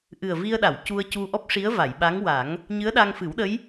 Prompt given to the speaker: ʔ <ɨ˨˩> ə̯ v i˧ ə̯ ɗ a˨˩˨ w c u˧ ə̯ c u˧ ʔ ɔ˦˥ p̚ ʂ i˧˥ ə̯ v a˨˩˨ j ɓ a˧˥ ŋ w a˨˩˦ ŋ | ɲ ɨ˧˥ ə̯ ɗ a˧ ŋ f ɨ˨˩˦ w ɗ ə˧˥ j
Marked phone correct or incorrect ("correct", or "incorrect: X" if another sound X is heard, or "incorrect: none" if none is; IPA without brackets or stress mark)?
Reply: correct